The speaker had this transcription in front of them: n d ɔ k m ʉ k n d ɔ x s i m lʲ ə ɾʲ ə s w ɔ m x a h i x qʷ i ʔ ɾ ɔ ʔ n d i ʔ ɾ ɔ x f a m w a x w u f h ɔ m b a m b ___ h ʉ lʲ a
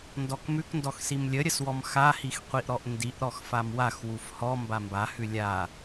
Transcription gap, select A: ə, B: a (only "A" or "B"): B